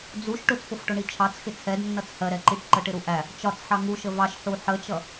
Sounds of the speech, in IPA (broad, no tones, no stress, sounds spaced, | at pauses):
d͡z u ʃ ʈ ʊ t͡s p ʊ f ʈ ʊ ɳ i t͡ʃʰ ɑ t͡s x ɪ t͡sʰ ɛ d nː ʌ t͡s h ɜ ɾ ɛ ǃ i ʈ ǃ ə ʈ ɪ ɾ u ʔ æ | t͡ʃ ɒ t͡s ħ ɑ ŋ u ʃ ə v ɑ ʃ ħ u ħ ə t͡ʃ ʌ